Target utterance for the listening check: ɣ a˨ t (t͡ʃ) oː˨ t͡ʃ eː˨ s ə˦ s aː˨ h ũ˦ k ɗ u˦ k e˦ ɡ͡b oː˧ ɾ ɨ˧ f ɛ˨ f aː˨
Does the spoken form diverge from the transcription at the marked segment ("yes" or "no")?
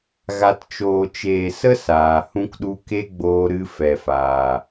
no